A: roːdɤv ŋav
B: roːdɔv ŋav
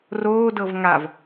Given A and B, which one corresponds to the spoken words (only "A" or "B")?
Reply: A